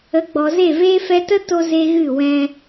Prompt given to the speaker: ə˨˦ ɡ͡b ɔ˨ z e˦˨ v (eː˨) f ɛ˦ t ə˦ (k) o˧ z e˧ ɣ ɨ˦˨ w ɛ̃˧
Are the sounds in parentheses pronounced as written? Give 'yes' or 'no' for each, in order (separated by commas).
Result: no, no